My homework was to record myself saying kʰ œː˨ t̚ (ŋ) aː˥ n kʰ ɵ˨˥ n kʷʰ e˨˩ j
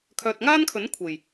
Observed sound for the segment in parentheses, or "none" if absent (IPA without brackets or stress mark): ŋ